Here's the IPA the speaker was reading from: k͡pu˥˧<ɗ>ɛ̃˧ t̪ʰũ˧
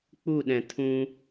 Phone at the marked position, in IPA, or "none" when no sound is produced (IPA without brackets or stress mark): ɗ